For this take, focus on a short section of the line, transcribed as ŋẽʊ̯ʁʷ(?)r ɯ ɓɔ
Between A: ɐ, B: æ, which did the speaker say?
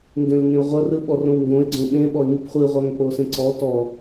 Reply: A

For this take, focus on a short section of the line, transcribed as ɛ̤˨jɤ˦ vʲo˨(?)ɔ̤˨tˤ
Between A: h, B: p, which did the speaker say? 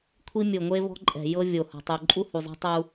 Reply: A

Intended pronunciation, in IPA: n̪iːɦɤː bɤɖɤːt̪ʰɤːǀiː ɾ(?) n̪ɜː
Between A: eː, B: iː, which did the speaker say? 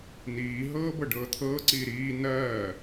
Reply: B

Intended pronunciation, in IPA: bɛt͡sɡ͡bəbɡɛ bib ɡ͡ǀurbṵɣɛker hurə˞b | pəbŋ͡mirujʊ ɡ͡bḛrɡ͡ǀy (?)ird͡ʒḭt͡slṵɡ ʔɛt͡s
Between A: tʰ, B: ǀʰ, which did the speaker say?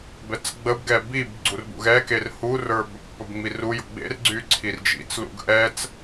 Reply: B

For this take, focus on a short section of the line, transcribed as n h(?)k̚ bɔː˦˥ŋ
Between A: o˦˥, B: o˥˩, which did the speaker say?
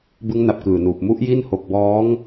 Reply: B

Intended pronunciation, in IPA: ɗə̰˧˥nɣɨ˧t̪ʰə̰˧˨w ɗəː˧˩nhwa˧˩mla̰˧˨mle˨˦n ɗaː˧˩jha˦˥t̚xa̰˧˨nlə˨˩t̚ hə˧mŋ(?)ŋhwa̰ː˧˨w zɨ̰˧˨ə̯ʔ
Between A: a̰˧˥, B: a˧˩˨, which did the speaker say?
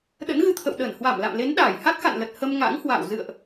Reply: A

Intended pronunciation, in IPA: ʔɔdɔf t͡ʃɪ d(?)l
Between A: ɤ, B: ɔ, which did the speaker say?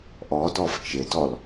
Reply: B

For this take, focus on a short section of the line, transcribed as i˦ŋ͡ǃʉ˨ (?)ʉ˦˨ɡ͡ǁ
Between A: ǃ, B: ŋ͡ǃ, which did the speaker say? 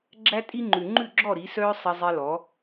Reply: B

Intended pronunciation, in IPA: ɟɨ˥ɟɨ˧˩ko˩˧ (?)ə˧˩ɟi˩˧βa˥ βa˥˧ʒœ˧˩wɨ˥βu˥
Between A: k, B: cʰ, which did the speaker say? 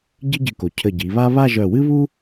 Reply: B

